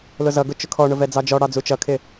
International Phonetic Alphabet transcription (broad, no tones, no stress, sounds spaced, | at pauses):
l ʊ z ʌ ɡ ʊ t͡ʃ ʊ kʰ ɔ ɳ ʊ v ɛ d͡z ɑ d͡ʒ ɔ ɽ ɑ d͡z u t͡ʃ ʌ kʰ ɪ